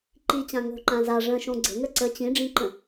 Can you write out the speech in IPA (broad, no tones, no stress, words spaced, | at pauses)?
ǃit͡ɕã ŋo̤ǃã za ʐə̃ʃõ ɡ͡ǀə̤ŋə ǀə t͡ɕĩɖ͡ʐĩǃə̃